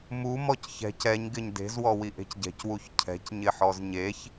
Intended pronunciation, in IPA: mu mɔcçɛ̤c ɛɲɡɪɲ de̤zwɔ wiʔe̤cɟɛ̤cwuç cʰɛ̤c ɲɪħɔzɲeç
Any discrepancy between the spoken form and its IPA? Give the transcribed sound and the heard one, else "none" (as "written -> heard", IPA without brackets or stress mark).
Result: none